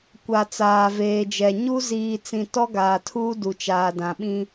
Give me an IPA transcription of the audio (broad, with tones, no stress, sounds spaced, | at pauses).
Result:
kʷ a˨ t͡s aː˨ v eː˨ d͡ʒ ɛ˨ ɲ u˦ z iː˨ t͡s ĩ˨ t ɔ˦ ɡ aː˨ tʰ uː˦ d u˨ t͡ʃ aː˨ d ã˨ ɓ ĩ˦